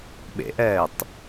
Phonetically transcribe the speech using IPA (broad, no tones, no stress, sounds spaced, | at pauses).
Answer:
ɓ ḛ ʔ ɛː tˤ